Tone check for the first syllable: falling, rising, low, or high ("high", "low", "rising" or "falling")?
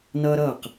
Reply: high